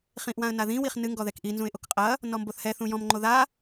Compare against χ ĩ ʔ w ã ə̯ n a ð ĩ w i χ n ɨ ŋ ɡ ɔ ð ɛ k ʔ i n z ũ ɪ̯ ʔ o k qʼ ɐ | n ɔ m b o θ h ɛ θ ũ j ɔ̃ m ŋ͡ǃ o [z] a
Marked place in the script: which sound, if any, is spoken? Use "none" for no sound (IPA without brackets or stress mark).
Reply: ð